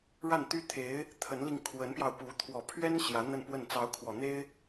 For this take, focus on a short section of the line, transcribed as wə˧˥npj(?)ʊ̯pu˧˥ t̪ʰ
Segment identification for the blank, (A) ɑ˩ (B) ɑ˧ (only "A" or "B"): B